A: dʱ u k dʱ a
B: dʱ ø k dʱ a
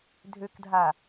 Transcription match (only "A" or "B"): B